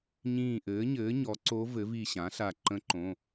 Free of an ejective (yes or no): yes